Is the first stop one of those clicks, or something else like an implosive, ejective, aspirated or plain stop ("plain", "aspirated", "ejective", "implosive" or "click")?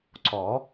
click